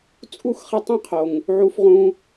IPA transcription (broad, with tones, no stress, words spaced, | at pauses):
t͡sʼu˦˨xχe˧ tˤẽ˦qʰo˨ŋ | ʕu˧fʁũ˧